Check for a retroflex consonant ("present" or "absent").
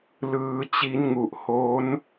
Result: absent